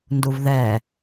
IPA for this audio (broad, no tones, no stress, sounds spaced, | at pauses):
n d u v ð ɛ